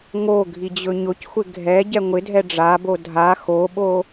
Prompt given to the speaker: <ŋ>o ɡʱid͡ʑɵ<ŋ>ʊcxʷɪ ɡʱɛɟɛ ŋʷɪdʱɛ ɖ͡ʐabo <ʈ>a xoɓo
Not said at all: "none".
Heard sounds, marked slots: ŋ, ɲ, dʱ

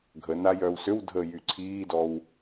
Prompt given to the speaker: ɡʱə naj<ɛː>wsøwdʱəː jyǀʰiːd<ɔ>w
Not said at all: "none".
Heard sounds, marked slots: œː, ɔ

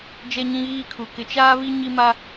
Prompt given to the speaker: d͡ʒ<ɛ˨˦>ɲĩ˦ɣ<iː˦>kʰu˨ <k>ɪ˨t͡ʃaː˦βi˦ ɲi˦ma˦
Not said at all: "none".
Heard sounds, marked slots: ɛ˦, iː˦, k

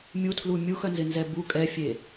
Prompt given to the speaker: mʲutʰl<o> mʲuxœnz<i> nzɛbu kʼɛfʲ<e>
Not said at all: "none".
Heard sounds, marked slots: u, ɪ, e

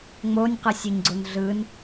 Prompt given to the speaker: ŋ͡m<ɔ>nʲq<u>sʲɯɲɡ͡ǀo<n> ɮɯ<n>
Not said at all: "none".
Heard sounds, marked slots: o, ɯ, n, n

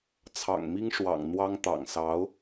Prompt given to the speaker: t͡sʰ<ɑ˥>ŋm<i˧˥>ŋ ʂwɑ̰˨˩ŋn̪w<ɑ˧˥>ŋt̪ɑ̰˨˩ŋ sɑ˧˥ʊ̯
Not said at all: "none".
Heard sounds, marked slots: ɑ̰˨˩, i˥, ɑ˥

